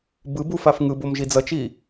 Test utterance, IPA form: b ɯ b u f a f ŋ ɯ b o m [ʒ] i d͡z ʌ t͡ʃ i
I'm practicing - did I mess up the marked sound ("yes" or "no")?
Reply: no